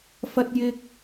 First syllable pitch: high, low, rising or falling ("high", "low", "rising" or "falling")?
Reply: high